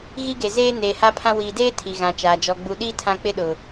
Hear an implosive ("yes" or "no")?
yes